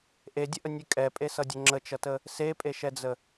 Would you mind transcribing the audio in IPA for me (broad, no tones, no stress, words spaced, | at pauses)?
ʔedʲəʔənʲʉ kʼɛpʼesʌdʲə ŋ͡ǁət͡ʃʌtə | sepʼeʃɛd͡zə